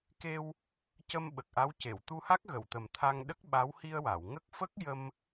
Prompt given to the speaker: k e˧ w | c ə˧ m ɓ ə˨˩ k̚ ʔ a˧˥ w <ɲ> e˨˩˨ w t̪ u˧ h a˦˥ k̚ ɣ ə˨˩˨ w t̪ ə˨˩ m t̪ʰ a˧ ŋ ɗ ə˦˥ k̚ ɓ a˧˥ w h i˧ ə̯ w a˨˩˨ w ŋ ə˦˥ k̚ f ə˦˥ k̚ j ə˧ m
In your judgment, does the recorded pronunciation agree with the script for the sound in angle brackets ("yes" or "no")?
no